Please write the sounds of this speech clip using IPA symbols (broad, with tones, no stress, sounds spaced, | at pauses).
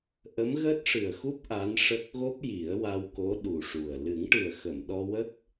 ʔ ə˧˥ m ɣ əː˦˥ t̚ ʂ ɨ˨˩ ə̯ x u˦˥ p̚ ʔ a˧˥ n ʂ ə˦˥ k̚ ɣ o˦˥ p̚ j i˨˩˦ ə̯ w a˧ w k o˧˥ ɗ u˨˩ ʂ u˨˩ ə̯ l ɨ˨˩˦ ŋ ʈ ɨ˨˩ ə̯ x ə˨˩˨ m ɗ ɔ˧ w ə˦˥ k̚